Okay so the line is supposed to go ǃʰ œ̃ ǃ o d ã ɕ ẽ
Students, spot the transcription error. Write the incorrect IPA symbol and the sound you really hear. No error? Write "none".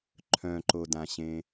none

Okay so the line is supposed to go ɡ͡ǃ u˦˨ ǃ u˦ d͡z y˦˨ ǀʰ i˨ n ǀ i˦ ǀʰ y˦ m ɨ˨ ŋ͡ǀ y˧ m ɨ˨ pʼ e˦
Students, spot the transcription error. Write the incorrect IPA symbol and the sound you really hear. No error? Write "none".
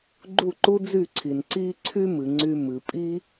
e˦ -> i˦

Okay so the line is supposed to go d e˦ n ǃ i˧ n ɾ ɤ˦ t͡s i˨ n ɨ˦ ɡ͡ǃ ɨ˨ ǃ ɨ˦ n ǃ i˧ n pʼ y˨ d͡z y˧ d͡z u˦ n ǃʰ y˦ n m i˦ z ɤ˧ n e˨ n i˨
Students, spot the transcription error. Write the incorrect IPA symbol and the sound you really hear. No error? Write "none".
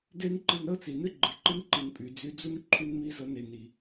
none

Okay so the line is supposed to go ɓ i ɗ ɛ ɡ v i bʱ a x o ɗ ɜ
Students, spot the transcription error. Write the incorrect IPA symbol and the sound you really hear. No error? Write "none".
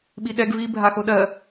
none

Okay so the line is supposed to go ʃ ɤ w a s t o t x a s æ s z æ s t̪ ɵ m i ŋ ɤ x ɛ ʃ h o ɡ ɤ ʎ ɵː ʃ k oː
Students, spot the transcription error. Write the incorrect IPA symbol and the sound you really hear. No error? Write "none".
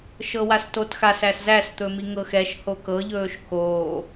ɡ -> k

